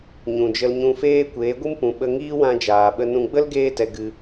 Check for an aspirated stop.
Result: absent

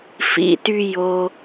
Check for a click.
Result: absent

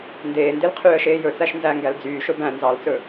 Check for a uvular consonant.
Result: present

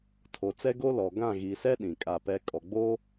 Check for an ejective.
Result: present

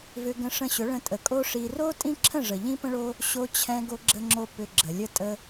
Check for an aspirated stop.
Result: present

